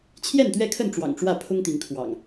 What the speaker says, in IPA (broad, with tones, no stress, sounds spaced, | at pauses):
t͡ɕʰ j ɛ˥˨ n t̪ ɥ ɛ˥˨ kʰ ə˥˨ n ʈ͡ʂ w ɑ̰˨˩ ŋ ʈ͡ʂ w ä˥˨ pʰ ʊ˦ ŋ t̪ i˨˦ ŋ kʰ w ɑ̰˨˩ ŋ